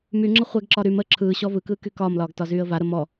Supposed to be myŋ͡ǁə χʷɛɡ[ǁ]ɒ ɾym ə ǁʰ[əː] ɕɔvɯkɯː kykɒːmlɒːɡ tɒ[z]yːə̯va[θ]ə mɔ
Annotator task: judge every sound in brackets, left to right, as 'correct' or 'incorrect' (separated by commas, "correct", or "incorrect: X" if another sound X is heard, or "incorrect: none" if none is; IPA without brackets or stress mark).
correct, incorrect: ɯː, correct, incorrect: ɾ